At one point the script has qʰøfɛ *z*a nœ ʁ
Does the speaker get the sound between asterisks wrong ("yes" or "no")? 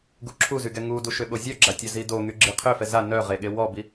no